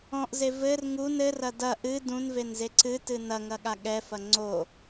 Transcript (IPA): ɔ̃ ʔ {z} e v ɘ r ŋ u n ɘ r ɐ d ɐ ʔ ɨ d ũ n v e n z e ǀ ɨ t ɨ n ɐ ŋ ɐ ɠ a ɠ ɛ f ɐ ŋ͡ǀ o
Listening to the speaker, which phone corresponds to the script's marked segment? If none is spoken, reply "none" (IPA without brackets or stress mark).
z